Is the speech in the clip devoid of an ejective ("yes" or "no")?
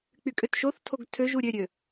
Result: no